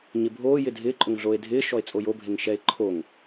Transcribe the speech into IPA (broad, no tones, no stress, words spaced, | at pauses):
ɲɪbʱoː jɪdʱɪːǃʼʊŋɮoːe̯ dʱɪː ʃɔe̯t͡sʼojobʱeŋ ʃɛe̯ǃʰoŋ